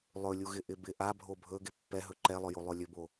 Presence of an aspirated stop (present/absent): absent